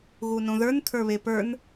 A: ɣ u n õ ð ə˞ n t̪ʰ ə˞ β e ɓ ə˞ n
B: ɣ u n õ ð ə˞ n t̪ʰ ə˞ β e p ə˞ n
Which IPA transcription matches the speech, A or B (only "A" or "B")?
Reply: B